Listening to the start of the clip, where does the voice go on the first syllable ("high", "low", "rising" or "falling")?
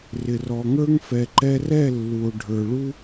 low